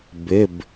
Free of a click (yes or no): yes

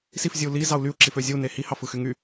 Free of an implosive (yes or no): yes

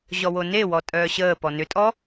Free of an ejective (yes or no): no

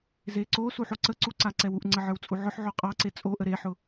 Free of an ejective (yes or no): no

